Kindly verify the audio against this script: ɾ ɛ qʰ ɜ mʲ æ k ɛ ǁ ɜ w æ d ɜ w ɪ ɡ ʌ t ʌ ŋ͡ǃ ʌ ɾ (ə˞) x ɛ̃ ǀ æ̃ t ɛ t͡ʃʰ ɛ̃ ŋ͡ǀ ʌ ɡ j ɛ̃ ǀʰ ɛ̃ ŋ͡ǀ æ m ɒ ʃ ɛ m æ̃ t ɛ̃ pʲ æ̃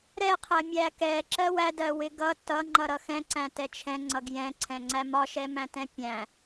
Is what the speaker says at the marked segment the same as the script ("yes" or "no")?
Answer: no